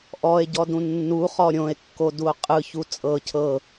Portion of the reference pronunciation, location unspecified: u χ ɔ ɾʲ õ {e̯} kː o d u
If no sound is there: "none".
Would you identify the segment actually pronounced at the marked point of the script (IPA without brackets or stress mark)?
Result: e̯